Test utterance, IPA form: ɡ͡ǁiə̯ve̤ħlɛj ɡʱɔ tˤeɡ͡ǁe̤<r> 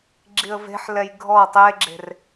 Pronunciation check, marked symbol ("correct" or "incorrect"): correct